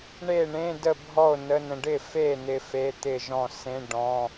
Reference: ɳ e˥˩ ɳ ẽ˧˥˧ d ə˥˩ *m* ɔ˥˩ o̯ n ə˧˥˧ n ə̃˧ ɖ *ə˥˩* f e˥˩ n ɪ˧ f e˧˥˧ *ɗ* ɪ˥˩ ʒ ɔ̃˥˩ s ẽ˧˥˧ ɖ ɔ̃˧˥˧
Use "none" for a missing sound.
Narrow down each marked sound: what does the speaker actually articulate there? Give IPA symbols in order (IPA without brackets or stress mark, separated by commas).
bʱ, ɪ˥˩, t̪